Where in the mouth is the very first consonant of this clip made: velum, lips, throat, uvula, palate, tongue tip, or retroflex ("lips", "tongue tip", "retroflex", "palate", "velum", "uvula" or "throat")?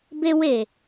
lips